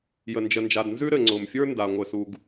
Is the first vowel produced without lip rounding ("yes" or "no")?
yes